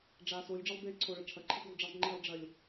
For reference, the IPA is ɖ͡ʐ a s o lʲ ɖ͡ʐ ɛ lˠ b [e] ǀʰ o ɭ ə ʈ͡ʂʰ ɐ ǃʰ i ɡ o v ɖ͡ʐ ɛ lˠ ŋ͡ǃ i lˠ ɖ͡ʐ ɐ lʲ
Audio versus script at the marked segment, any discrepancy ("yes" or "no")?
no